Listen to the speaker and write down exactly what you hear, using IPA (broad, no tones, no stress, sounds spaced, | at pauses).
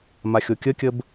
m a xʲ o kʲ ə kʲ ə b